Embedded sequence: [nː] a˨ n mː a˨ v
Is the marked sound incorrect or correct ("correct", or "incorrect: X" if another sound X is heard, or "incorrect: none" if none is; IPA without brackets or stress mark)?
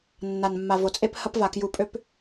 correct